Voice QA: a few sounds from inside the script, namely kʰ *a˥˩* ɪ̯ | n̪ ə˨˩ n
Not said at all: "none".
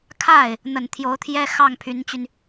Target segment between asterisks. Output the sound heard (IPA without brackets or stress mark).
a˥˩